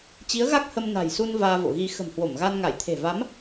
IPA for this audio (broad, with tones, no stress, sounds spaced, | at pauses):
t͡ɕ i˨˦ ə̯ ɣ a˦˥ k̚ h ə˧ m n a̤˨˩ j s u˧ n v aː˧ v o̰˧˨ ɣ i˧ x ə̤˨˩ m h w o˧˩ m ɣ a˧ n ŋ a˧˩ j t̪ʰ e̤˨˩ v a˨˦ m